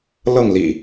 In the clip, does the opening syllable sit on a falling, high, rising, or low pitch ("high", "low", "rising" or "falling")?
falling